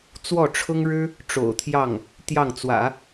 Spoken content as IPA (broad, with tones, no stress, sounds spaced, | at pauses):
t͡s w ɔ˥˩ ʈ͡ʂʰ ʊ˥ ŋ ɻ ɻ̩˥ | ʈ͡ʂ o̰˨˩ ʊ̯ t̪ʰ j ɑ˥˩ ŋ | t̪ j ɑ˥˩ ŋ t͡s w ä̰˨˩˦